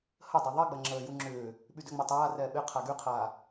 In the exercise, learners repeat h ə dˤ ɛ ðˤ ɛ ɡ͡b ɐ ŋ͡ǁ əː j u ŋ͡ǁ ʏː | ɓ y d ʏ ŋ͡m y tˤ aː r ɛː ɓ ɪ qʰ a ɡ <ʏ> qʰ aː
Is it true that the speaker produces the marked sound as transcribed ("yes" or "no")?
no